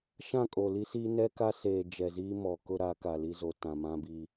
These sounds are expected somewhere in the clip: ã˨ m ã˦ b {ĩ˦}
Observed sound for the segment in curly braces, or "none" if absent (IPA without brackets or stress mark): i˦